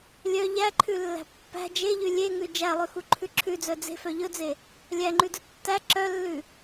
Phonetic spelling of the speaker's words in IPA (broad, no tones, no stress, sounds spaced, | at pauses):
lʲ œ ʎ æ ǃʰ ʉ lː æ̤ pː æ̤ d͡ʒ e ʎ ʉ lʲ e ŋ ʉ d͡ʒ æ lˠ ʉ x u ǃʰ ʉ ǁʰ ʉ d͡z œ d͡z e̤ f œ ʎ ɵ d͡z e | lʲ æ ŋ͡ǃ ʉ d ɵ tː æ ǁ œ lː ʉ